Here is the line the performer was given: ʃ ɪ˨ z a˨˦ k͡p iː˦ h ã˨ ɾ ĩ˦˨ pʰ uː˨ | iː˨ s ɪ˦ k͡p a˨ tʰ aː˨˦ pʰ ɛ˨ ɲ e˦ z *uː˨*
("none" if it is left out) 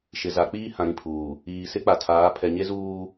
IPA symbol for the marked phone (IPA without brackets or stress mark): uː˦